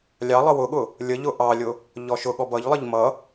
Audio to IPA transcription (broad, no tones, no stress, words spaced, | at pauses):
lʲɑlˠə wʊɠʊ | lʲəʎʊ ʔɑlʲʊ | ʎɔʃʊɠɔ bʌʎlˠəʎ mʌ